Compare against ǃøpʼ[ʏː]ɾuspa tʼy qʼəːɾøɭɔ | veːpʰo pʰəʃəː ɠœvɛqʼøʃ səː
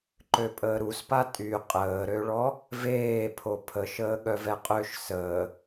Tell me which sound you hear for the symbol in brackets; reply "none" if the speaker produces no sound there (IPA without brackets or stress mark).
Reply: əː